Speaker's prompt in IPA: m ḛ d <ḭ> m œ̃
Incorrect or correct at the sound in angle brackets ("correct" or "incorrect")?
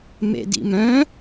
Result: correct